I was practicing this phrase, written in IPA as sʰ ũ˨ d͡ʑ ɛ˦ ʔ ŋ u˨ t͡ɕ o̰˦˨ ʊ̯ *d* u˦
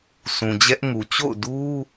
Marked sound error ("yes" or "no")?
no